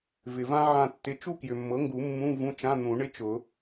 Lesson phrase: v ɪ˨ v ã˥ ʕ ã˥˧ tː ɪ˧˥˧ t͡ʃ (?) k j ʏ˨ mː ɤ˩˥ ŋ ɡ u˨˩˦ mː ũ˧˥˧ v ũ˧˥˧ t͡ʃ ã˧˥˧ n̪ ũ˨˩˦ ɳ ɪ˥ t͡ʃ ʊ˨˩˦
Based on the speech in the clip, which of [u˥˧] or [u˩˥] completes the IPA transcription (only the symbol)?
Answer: u˥˧